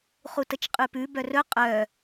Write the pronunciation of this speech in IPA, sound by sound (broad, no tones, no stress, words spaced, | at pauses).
χutət͡ʃqʼʉpʉ bœrɵ qʼœ